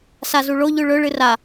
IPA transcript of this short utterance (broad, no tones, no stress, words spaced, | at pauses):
sazuɭo ʎʉɭɵ ɭɨra